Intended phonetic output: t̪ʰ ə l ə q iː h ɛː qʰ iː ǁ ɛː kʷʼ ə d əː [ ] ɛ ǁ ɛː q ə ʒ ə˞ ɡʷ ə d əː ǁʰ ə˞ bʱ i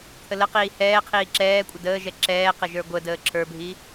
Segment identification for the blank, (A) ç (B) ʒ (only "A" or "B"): B